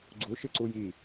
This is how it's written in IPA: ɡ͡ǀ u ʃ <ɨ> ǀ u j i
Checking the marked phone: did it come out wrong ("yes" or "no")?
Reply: no